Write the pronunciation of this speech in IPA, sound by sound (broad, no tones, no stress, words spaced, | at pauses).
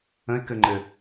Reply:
ə̃ɪ̯kɘŋ͡ǃɘ